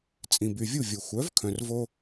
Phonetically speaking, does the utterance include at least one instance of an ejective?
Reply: yes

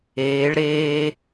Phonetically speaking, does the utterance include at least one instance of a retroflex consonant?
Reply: yes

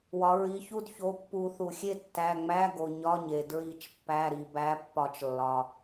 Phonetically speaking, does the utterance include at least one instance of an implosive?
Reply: no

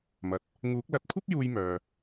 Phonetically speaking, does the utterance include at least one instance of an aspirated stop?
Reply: yes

